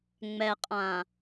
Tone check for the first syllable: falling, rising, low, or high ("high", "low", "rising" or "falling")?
low